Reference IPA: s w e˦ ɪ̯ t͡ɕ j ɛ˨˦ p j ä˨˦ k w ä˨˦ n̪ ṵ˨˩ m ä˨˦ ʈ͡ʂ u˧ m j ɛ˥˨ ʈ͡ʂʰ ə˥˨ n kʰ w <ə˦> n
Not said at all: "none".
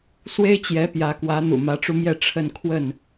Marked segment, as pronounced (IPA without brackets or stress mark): ə˥˨